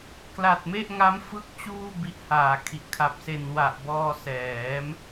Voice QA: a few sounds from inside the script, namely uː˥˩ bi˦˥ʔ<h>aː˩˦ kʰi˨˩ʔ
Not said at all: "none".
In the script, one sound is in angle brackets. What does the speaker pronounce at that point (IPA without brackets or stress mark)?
h